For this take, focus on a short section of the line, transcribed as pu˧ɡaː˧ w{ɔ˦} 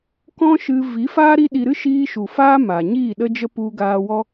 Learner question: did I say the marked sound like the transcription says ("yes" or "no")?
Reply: yes